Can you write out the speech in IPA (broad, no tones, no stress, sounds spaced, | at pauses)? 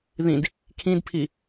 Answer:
ð ĩ d | kʰ ĩ d pʰ i